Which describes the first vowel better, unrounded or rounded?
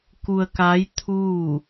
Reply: rounded